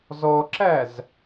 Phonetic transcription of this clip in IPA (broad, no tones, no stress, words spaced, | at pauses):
zɔǁæz